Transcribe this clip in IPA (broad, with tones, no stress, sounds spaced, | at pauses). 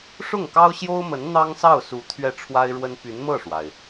ʂ ʊ˥˩ ŋ k ɑ˥ ʊ̯ ɕ j o˥ ʊ̯ m ə˧˥ n n̪ ɑ˥ ŋ s ɑ˥˩ ʊ̯ s u˧˥ t̪ʰ ɥ ɛ˥˩ ʈ͡ʂʰ w a˥ ɪ̯ ɻ w ə˥ n p y˧˥ n m ɤ˥˩ ʂ w a˩ ɪ̯